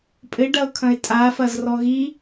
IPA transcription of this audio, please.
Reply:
pʼ ɘ ɖ ɐ ʊ̯ kʰ ɐ̃ ɪ̯ tʼ a f ɐ z r ɔ ɣ i

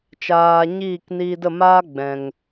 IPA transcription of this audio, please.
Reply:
t͡ʃ aː˧ ɲ iː˦˨ k n iː˧ d ə˦˨ m aː˦ ɡ͡b ɛ̃˨ ŋ

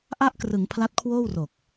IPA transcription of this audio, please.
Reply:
ʔ a˥˩ ʔ k r ɯ˩˦ ŋ pʰ l a˦˥ t̚ kʰ w oː˥˩ w r o˨˩ k̚

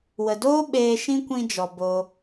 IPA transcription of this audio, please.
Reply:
w ə˨ d oː˦ ɓ eː˧ ʃ ĩ˦ kʷ ĩ˧ d͡ʒ ɔ˨ b o˧

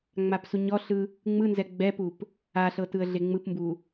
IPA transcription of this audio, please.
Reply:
ŋ͡m a p s u ɲ ɔ ɬ ɯ | ŋ͡m ɯ n z ɛ ɡ͡b ɛ p u p | a ɬ ɤ t ɯ ə̯ ɮ e ŋ͡m ɯ p m b u

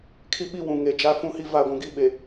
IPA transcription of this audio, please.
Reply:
kʰ i˦ ɓ i˦ w ũ˨ ŋ e˨ d͡ʒ a˦ f ũ˦ h i˦ v a˦˨ ɡʷ ũ˨ ɡ i˦ ɓ e˨

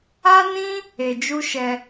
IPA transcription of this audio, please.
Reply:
a˦ n ĩ˦ | e˧ d͡ʒ u˦ ʃ ɛ˧

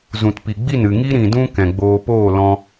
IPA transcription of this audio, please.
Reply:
z ũ˨ t p i˨ ɡ͡b i˦˨ n ɨ˨ ŋ i˦ ɾ ĩ˨ d ũ˧ k ɛ̃˨ ɡ͡b oː˧ p oː˦˨ l ɔ̃˧

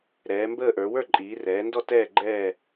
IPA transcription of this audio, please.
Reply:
ɾ ɛː˩˧ m b əː˥˨ ʔ ə˞˩˧ w ə˞˥˨ ǃʼ iː˩˧ r ɛː˩˧ n d ɔ˥˨ t ɛː˥˨ ɡ͡ǃ ɛː˥˨

